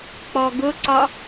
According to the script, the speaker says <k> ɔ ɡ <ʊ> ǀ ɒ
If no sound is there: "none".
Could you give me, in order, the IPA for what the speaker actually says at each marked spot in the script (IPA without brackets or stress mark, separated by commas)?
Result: k͡p, ʊ